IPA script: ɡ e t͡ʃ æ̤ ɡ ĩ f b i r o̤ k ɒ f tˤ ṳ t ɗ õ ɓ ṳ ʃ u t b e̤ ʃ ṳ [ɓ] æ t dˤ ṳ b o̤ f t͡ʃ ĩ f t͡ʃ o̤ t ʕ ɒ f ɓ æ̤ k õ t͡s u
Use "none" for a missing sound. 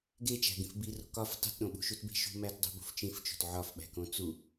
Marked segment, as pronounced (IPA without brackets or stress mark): m